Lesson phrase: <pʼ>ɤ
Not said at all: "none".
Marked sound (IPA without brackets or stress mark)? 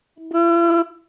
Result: b